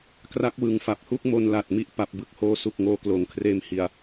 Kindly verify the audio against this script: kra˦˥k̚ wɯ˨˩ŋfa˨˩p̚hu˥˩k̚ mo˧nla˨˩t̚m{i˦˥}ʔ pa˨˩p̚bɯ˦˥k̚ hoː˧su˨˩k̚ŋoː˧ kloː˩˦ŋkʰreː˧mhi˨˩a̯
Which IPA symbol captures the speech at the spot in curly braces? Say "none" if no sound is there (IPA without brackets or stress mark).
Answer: i˦˥